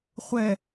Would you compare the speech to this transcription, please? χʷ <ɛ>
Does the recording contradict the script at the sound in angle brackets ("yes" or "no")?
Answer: no